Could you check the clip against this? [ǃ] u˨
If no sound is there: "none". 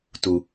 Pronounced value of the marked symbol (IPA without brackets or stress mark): t